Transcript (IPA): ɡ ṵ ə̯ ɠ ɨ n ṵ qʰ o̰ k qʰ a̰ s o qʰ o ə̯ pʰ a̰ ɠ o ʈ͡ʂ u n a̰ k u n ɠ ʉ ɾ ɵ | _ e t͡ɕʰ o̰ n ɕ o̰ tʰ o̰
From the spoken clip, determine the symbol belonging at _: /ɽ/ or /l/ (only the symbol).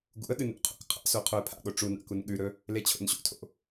l